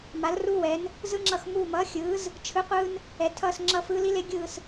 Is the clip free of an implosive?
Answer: yes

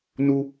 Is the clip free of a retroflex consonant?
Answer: yes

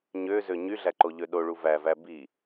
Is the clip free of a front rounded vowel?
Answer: no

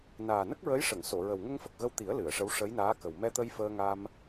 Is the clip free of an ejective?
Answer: yes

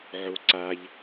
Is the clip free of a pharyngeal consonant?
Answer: no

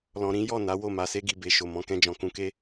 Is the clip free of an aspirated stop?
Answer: yes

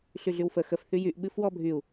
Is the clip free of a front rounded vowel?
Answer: no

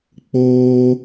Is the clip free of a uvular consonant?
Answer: yes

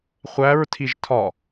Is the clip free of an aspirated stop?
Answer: no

